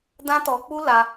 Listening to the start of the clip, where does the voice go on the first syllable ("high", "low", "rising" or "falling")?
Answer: high